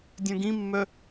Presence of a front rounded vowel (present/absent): present